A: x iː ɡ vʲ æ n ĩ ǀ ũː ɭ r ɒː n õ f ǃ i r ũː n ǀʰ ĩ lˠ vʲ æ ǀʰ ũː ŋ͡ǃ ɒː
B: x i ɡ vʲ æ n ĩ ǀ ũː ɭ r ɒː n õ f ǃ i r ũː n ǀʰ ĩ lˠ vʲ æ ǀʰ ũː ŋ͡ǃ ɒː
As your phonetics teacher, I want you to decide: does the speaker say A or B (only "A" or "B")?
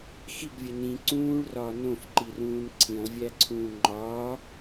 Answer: B